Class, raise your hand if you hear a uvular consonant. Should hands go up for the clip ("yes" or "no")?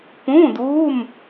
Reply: no